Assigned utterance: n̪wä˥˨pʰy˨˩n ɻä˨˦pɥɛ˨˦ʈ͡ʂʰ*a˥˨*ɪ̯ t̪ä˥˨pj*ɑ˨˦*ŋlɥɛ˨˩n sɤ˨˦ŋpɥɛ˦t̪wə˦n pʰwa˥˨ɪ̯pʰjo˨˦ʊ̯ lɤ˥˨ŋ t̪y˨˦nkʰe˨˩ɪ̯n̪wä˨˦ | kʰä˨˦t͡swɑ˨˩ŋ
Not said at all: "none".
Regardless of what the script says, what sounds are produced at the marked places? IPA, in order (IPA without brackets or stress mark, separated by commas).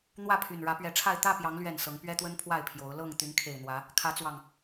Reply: a˥˨, ɑ˨˦